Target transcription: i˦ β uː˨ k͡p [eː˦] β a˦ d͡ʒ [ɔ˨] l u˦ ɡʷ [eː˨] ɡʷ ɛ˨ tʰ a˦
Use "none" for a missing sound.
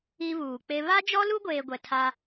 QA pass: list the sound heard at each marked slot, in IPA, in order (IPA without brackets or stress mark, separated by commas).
e˦, ɔ˦, eː˦